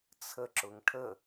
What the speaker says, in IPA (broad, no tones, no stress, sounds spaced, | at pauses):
t͡sʰ ə ǁ ʊ ŋ ʈʰ ə